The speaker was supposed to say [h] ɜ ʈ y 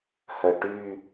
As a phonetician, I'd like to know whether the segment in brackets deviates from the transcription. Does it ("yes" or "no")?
no